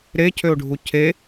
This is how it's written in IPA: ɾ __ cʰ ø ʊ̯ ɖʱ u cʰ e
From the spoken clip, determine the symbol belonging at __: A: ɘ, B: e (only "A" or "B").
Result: B